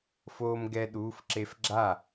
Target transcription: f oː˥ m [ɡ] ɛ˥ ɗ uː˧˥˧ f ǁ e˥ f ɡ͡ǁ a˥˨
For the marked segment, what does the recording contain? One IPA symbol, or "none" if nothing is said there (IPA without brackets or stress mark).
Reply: ɡ